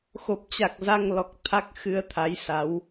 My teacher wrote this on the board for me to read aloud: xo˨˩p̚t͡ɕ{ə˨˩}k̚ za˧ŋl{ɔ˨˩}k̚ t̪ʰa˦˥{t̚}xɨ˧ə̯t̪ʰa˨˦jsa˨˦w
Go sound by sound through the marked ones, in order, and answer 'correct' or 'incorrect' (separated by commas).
incorrect, correct, incorrect